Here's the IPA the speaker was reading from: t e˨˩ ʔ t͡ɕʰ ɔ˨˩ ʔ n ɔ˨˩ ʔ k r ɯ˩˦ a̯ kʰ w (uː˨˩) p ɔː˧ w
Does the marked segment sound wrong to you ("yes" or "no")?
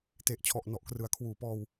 no